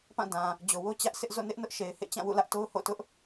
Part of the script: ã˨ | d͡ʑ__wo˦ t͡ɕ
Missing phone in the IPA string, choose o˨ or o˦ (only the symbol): o˨